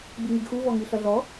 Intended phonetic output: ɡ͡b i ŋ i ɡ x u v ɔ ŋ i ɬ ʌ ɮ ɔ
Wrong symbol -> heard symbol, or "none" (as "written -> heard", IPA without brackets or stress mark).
none